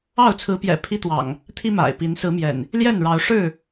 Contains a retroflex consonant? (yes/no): yes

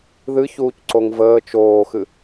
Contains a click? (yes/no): yes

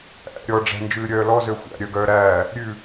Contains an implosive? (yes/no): no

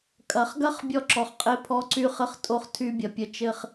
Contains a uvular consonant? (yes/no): yes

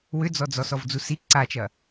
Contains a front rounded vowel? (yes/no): yes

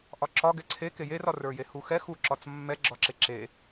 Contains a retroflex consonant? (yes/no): no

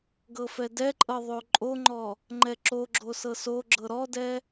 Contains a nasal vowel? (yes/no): no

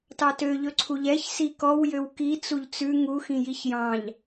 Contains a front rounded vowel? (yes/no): yes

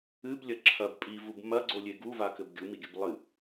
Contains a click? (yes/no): yes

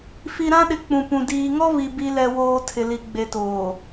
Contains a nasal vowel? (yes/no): yes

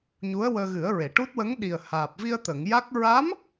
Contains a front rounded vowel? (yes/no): no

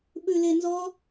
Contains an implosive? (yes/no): yes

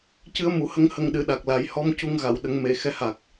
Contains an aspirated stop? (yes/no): no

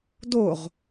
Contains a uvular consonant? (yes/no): yes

